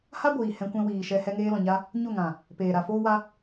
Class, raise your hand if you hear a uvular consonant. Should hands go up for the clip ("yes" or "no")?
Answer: no